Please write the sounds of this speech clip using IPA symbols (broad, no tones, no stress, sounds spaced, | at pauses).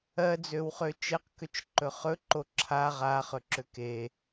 ɜ d͡z ø w χ ø t͡ʃ e q k ø t͡ʃ ǃ ɵ χ ɵ ǃ o ǁʰ a ʁ a χ ɵ ǁ ø k e